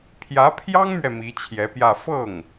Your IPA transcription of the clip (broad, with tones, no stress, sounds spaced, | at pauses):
pʰ j ä˧˥ pʰ j ɑ˥ ŋ m ɥ ɛ˨ m i˧˥ t͡ɕʰ j ɛ˧˥ p j ä˥˧ f ɤ˥˩ ŋ